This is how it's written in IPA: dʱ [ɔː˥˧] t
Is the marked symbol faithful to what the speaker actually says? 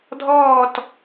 yes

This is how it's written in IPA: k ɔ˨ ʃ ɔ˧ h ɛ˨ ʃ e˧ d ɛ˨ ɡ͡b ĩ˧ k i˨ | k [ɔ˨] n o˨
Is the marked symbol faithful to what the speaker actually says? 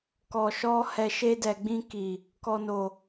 yes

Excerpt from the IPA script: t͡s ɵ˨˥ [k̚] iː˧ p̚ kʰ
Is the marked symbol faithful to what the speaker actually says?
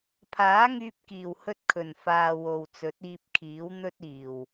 no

